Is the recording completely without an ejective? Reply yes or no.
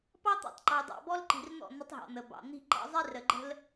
yes